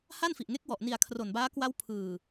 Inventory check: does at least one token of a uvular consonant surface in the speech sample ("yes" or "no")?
no